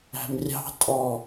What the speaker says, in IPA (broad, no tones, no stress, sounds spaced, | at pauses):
æ̤ m rʲ ɑ̤ tʼ ɔ